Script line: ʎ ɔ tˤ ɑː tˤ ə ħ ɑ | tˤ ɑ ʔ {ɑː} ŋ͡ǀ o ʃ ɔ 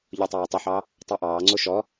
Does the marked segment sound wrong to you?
no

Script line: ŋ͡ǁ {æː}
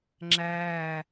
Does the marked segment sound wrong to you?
no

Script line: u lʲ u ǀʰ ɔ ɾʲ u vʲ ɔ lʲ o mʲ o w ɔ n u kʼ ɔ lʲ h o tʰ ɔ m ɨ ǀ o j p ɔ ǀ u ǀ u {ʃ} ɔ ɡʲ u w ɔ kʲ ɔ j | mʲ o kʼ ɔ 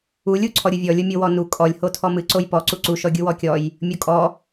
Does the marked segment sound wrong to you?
no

